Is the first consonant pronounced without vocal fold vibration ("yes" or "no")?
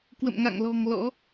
yes